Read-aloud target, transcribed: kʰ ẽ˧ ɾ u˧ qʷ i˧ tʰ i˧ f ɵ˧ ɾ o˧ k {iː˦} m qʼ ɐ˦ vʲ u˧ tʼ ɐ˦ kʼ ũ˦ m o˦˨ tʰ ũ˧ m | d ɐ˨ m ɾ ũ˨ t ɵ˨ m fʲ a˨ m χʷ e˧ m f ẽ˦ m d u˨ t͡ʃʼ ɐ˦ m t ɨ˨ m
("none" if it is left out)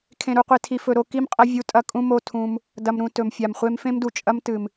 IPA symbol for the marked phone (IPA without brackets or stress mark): i˦